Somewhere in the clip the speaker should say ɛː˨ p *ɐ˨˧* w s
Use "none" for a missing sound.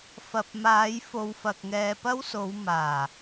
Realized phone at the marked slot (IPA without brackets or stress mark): ɐ˥